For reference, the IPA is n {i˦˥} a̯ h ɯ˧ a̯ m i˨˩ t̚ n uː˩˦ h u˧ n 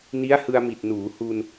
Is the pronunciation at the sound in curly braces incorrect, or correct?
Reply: correct